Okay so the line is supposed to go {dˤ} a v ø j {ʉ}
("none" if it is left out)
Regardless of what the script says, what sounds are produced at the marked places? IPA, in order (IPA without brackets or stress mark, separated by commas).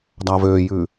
dˤ, ʉ